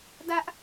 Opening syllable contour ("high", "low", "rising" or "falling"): high